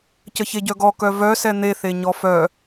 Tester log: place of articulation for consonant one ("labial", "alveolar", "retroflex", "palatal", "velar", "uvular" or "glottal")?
palatal